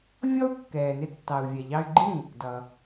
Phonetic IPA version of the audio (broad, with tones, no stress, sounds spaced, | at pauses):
vʲ ɔ˥ u̯ kː ɛː˩ n ɪ˧ tː ɑ˩ u̯ vʲ ɛ˩ ʎ ɑ˧ y̯ ɡ͡ǃ ĩ˥˩ | d ʌ˩